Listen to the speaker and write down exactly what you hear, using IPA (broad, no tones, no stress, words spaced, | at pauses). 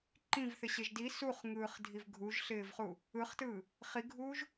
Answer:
ǃĩvθɪɕeʒ di suχŋɯːχdʱiv ɡʱuʒɬɪːvχu | ɯχtɯː | χiɡʱuːʒ